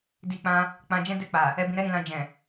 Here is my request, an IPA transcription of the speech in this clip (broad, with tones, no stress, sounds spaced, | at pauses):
d i˧ k͡p ã˧ | k͡p ã˧ d͡ʒ ɛ̃˦ d ɛ˦˨ k͡p a˨ | ɛ˧ b ĩ˧ ɾ ɛ˦ ɾ ĩ˧ l ã˧ d͡ʒ ɛ̃˨